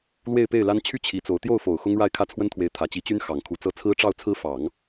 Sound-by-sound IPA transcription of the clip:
l w e˥˧ ɪ̯ p e˥˩ ɪ̯ l a˥ n t͡ɕʰ y˥˩ t͡ɕʰ i˧˥ t͡s o˧˥ ʊ̯ t̪ j o˥˩ ʊ̯ f o˨˩ ʊ̯ x ʊ˥ ŋ ɻ a˥˩ ɪ̯ kʰ ä˥ t͡sʰ w ə˥ n t̪ʰ w e˧˥ ɪ̯ t̪ʰ ä˨˩ t͡ɕ i˧˥ t͡ɕ y˥ n x ɑ˨˩ ŋ kʰ u˧˥ t͡s ɤ˥ t͡sʰ ɹ̩˥ ʈ͡ʂ ɑ˥˩ ʊ̯ t͡sʰ ɹ̩˥ f ɑ˨˩˦ ŋ

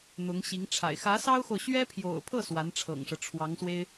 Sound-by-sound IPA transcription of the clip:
n̪ ʊ˧˥ ŋ ɕ i˧˥ ŋ ʈ͡ʂʰ a̰˨˩ ɪ̯ x ä˧˥ s ɑ˥ ʊ̯ x o˨ ʊ̯ ɕ ɥ ɛ˥ pʰ j o̰˨˩ ʊ̯ pʰ ɤ˥˩ s w a˧˥ n ʈ͡ʂʰ ɤ̰˨˩ ŋ ʂ ɤ˦ ʈ͡ʂʰ w ɑ˧˥ ŋ s w e˥ ɪ̯

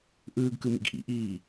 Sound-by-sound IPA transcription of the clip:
ʔ ɯː ɡ k ɯ m ḭ ɡ ʔ ḭ ʔ iː

